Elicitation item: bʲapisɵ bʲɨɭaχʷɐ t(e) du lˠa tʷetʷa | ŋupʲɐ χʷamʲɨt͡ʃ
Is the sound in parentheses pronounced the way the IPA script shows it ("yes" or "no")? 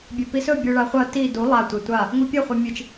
no